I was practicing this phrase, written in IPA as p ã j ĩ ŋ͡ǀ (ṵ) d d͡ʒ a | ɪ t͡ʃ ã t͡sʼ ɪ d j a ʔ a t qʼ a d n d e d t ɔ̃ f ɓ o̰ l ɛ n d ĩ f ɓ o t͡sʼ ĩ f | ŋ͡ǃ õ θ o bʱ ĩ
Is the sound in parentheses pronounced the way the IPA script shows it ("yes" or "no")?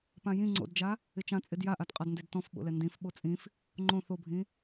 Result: no